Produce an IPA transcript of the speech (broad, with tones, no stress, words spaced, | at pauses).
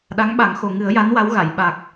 ɗa˧˥ŋɓa˨˩˦ŋ xo˨˩ŋɨ˨˩˦ə̯ja˧˥n wa˧˥wɣa˨˩˨j ɓa˨˩k̚